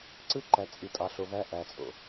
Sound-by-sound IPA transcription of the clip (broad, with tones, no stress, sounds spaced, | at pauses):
ǀ ɯ˦ ǃ æ˨ t͡sʼ i˨ tʼ ɑ˨ ɬ o˨ β æ˧ ʔ æ˨ t͡sʼ o̰˨